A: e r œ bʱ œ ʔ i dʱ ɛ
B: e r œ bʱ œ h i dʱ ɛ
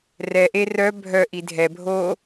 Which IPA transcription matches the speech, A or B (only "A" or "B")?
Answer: A